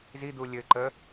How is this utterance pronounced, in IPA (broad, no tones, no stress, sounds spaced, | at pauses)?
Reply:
z i d̪ u lʲ ɘ ǃ ə